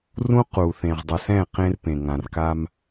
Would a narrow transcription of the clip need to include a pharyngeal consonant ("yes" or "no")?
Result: no